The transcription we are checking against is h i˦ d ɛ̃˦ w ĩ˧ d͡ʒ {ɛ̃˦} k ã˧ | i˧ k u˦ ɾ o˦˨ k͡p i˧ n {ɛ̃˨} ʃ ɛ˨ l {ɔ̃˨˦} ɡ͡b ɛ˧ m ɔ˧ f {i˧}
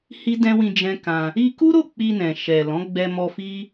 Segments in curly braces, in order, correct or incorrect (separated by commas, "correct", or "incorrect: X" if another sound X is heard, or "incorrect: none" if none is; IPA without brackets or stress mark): correct, correct, correct, incorrect: i˦